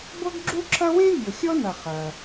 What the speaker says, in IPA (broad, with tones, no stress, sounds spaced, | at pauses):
b ɤ˥ ɡ ɡ͡ǁ u˥ ǁʰ ɐ˥ w ẽ˥ vʲ ɤ˩ xʲ ɔ˥ n ɐ˩ χ ɐ˩